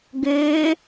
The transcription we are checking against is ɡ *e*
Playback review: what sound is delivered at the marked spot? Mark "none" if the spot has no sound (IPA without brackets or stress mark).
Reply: ø